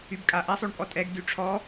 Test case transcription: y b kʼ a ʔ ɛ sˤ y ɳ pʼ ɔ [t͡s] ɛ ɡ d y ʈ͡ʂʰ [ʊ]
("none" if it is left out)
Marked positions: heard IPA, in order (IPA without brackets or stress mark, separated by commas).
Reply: tʼ, ɔ